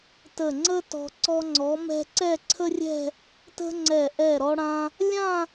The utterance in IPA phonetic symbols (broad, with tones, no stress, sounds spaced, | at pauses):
t ə˧˩ ŋ͡ǀ ə˥ t ɔ̤˧ ǀ ɔ˧ ŋ͡ǀ ɔ˩˧ m ɛ̤˧ ǀ ɛ˥˧ ǀʰ ə˥ rʲ ɛ̤˥˧ | t ə̤˥ ŋ͡ǀ ɛ˧˩ ʔ ɛ˧˩ ɾ ɔ˧ ɽ ã˧ | lʲ ã˥˧